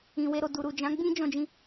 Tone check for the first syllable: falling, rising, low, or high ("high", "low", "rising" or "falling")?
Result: low